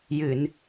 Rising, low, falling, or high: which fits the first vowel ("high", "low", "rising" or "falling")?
low